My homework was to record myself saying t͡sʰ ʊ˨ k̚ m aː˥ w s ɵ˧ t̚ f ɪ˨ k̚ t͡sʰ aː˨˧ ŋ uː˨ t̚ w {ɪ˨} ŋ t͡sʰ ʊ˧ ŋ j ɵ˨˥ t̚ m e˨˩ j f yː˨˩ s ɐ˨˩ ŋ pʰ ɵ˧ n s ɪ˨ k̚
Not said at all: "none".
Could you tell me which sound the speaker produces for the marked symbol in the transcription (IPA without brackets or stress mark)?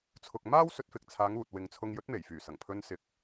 ɪ˨